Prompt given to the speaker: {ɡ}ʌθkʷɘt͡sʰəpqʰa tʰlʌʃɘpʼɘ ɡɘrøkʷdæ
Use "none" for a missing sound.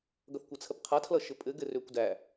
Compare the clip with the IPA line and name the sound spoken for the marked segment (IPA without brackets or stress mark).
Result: ɡ